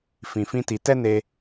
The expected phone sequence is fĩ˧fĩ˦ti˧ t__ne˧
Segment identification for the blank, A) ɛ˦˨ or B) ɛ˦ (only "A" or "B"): B